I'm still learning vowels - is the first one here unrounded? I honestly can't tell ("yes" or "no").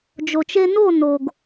no